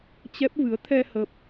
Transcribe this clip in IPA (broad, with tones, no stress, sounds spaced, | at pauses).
t͡ɕ ɛ˦˥ p̚ v ɨ˨˦ ə̯ t̪ʰ ɛ˧ h ə˦˥ p̚